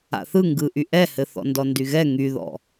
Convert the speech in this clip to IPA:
a̰ θ ɯ ŋ ɡ ɯ ʔ y ʔ ɛ h ɘ θ ɔ̰ n d ɔ n d y ɣ ɛ ŋ y ð ɔ̰

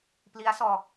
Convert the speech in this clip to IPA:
p l i˦˥ a̯ s ɔː˧

